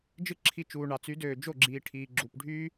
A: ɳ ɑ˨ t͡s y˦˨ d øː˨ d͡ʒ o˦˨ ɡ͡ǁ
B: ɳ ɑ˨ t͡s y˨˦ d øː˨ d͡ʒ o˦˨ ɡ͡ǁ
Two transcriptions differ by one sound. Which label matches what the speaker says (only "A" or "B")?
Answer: B